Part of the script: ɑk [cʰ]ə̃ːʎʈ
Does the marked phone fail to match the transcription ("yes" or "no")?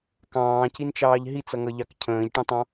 no